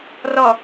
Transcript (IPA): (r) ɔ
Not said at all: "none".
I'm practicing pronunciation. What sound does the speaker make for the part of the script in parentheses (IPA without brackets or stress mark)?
r